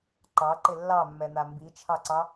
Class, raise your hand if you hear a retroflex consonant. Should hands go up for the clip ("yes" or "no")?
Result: no